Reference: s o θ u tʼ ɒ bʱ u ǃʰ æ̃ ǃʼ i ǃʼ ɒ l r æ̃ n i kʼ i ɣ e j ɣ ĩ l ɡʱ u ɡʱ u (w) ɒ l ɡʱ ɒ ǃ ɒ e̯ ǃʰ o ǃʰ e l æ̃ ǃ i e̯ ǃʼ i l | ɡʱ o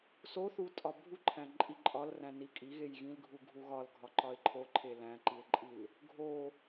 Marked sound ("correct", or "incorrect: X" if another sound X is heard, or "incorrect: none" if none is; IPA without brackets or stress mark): incorrect: ɣ